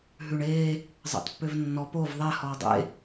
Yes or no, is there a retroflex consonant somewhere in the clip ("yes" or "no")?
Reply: yes